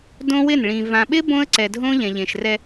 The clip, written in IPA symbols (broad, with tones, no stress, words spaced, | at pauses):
dõ˦wɪ˦˨nɭĩ˨ vã˨ɓɪ˦ bõ˦ə̯ǀɛ˨dʱõ˦ ʎɛ̃˨ʎẽ˨ʃrɛ˦